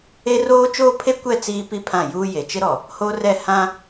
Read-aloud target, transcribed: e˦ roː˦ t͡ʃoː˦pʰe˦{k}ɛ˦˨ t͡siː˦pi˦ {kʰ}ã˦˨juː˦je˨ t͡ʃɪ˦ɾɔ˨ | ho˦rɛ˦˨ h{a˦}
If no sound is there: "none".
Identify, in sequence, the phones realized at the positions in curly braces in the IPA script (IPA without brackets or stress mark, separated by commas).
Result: kʷ, pʰ, ã˦